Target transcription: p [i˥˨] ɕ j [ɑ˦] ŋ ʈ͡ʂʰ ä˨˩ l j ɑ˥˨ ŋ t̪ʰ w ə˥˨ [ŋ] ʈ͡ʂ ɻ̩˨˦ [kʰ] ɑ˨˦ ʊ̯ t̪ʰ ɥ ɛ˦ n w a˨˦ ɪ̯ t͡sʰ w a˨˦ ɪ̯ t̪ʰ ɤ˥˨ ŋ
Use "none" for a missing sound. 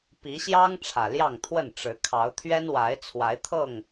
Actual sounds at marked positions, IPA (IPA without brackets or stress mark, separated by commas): i˨˦, ɑ˦, n, kʰ